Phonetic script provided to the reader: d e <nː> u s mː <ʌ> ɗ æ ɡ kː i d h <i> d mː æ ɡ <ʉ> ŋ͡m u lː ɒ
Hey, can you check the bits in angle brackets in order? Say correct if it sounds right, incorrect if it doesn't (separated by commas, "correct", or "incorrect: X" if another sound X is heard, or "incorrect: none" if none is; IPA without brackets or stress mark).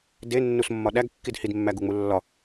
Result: correct, incorrect: ɒ, correct, incorrect: u